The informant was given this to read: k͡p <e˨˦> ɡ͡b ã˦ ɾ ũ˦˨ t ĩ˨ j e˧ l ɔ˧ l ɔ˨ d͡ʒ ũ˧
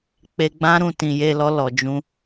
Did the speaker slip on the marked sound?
yes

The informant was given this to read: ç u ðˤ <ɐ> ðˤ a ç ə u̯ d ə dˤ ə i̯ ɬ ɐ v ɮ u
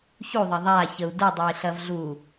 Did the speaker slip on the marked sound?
no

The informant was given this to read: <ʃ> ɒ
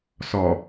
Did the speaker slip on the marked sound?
yes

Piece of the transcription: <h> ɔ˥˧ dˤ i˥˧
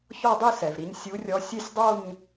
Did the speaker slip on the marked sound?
yes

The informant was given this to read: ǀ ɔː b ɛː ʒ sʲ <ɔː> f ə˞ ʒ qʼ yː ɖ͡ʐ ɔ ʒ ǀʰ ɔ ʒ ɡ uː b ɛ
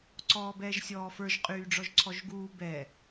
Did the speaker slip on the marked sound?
no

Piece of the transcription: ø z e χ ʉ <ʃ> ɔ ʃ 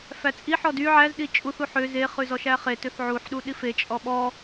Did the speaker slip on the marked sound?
yes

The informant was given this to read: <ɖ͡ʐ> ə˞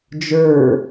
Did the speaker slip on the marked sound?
yes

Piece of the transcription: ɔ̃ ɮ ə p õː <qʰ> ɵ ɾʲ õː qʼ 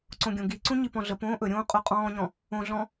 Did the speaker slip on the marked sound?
yes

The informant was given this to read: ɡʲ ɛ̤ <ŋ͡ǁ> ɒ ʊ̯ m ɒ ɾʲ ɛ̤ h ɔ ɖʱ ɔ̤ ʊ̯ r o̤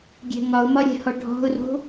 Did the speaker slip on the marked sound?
yes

